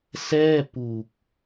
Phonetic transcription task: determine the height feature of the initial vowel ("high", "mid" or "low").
mid